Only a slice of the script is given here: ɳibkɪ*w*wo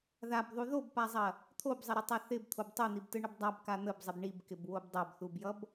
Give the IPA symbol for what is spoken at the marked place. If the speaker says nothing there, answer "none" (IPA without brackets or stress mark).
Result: b